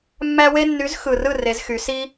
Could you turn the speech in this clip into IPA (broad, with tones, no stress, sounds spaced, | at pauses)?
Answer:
mː æ˦ w e˦ nː y˨˥ z x ɯ˨˩ r ɯ˥˩ r e˩˧ z x y˩˧ s i˦